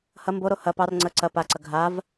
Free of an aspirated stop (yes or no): yes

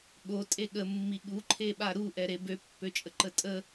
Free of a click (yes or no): no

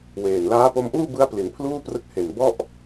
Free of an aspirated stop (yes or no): no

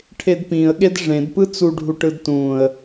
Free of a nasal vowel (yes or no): no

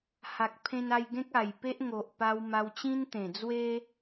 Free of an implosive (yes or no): yes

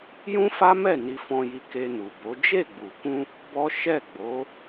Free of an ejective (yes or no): yes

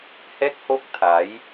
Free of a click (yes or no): yes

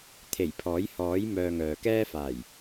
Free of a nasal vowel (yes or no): yes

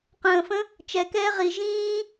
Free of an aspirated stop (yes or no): yes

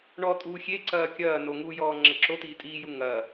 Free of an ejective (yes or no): no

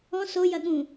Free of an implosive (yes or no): no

